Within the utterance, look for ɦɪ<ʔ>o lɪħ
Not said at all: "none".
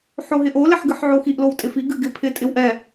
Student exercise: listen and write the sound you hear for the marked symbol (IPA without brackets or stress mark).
ʔ